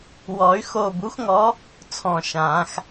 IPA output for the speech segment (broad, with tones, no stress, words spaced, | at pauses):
wɔ˨˩˦y̯xoː˧˩ bu˨˦xŋɔ˨˦ | t͡sʰɔ̃˧˩ʃãː˨˩˦x